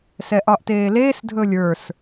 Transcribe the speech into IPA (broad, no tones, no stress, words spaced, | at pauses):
sɛʔɒʔteːleːs dʱɵlʲə˞s